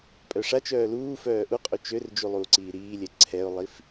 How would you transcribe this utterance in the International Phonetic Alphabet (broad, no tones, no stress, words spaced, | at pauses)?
pʼœʂat͡ʃœː luːfœː ʔuqʼu t͡ʃørd͡ʒu lˠuːǀiːɾiːlʲɛ ǀʰɛʊ̯lˠif